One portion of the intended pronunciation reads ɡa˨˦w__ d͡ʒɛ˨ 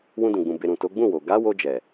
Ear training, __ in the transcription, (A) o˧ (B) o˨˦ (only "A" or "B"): A